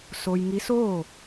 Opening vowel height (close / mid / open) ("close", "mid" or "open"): mid